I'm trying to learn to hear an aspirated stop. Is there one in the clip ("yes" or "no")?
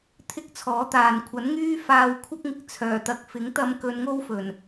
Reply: yes